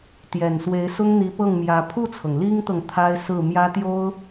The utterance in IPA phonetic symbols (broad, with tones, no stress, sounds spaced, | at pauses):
t̪ j ɛ˨˩ n s w e˧˥ ɪ̯ s ʊ˥ ŋ n̪ i˧˥ p ɤ˥˩ ŋ m j ä˧˥ pʰ u˥˩ t͡sʰ ɤ˩ ŋ l i˥ ŋ t̪ ɤ˨ ŋ t̪ʰ a˥ ɪ̯ s ɹ̩˥˩ m j ä˥ t̪ j o˥ ʊ̯